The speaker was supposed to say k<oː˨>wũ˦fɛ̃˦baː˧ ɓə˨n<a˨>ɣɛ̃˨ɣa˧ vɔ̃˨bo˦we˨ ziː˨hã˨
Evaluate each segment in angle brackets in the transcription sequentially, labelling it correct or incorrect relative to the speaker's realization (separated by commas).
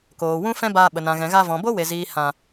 correct, incorrect